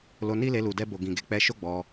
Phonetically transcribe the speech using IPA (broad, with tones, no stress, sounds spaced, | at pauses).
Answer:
l o˧ n i˦ l e˧ l u˨ d ɛ˧ b o˨ ɡ ĩ˨ ɡ e˨˦ k͡p ɛ˧ ʃ o˦ ɡ͡b ɔ˧